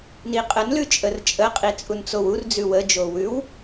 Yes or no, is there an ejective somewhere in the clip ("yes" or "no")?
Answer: yes